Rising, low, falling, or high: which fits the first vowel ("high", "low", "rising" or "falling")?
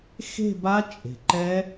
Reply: falling